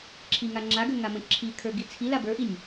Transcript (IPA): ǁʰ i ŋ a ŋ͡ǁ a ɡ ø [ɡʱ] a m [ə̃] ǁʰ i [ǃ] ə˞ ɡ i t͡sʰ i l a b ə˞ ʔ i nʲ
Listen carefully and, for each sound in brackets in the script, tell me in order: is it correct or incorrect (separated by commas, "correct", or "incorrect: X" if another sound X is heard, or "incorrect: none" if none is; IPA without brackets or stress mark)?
incorrect: ŋ, correct, incorrect: kʰ